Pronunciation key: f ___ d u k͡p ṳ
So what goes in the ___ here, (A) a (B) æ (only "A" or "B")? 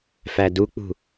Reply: B